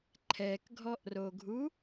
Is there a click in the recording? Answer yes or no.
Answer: yes